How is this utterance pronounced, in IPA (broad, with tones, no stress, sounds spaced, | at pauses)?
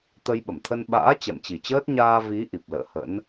t̪ ə˧ j ɓ ə˧˩ m t̪ʰ ə˧ n ɓ a̰ː˧˥ t͡ɕ ɛ̰˧˨ m t͡ɕ i˨˩ t͡ɕ əː˦˥ t̚ ɲ aː˧ v i˨˦ ʔ i˨˩ p̚ l ə̰ː˧˨ h ə̰˧˥ n